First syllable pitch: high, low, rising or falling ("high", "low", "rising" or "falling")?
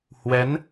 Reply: rising